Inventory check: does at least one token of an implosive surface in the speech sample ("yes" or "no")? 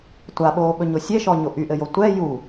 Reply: yes